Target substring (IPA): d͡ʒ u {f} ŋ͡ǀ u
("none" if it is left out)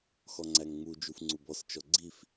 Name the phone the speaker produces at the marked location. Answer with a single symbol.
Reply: f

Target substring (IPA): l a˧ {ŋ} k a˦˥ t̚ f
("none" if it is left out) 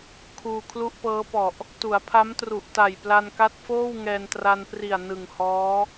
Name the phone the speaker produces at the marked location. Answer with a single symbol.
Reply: n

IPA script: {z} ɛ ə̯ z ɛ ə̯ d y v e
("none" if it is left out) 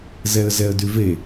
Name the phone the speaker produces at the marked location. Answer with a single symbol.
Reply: z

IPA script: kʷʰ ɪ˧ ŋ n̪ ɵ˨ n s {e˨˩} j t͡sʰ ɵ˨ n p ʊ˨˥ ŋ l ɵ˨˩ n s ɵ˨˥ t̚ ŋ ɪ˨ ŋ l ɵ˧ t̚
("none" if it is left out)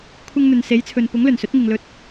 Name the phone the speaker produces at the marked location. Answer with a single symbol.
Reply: e˨˥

